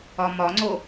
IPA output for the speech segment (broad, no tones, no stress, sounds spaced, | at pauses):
ɒ m ɒ ŋ͡ǀ o